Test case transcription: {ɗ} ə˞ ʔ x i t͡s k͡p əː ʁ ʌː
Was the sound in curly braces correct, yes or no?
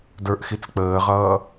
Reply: no